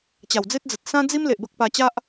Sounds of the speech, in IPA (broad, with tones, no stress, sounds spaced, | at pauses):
t͡ɕ a˨˩ w d͡z e˦ t̚ d͡z ə˨ t̚ s ã˦ d͡z i˦ m l e˨ ʔ b ə˦ k̚ p a˧ t͡ɕ a˦ ʔ